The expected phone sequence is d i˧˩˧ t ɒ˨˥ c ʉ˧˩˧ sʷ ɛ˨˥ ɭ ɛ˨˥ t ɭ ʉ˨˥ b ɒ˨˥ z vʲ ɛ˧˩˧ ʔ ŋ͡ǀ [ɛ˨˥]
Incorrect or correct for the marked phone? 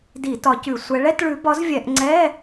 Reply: incorrect: ɛ˧˥˧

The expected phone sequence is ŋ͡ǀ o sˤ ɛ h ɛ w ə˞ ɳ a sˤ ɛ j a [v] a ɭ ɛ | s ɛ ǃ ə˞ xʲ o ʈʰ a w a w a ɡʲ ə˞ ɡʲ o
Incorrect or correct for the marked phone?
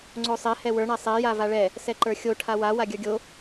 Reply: correct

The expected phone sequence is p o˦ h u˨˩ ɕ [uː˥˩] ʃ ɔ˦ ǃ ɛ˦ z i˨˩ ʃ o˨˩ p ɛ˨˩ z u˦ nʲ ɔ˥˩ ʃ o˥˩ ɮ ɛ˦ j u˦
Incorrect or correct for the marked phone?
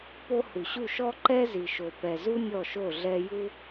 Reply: incorrect: u˥˩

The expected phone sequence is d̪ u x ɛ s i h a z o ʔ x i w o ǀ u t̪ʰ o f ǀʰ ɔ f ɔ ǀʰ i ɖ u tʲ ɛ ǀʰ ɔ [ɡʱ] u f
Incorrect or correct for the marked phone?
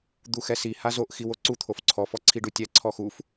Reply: incorrect: x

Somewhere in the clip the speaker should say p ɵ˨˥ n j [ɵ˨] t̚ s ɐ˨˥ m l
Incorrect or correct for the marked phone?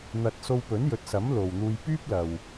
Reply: correct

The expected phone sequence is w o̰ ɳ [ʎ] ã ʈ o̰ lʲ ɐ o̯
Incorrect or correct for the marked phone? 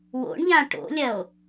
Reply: correct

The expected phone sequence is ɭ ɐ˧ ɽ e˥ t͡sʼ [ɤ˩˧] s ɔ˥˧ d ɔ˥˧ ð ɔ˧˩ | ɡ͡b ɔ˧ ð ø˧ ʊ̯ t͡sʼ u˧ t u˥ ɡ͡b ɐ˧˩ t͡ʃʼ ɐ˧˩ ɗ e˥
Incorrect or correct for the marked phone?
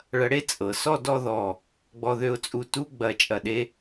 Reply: correct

